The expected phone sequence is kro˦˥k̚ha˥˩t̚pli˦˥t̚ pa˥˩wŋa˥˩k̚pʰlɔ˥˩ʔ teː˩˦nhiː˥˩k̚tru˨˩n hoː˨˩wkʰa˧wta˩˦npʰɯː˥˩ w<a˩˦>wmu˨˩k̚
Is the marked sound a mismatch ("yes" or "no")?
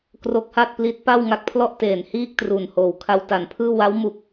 yes